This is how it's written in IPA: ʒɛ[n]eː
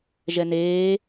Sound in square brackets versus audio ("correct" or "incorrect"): correct